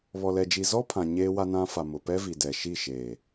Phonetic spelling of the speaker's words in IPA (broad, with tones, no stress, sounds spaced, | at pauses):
β ɔ˨ l ɛ˨ d͡ʒ i˨ z ɔ˦ pʰ ã˨ ɲ eː˦ w a˦ n ã˦ f a˨ m ʊ˨ p ɛ˦ v i˨ d ɛ˨ ʃ i˦˨ ʃ eː˨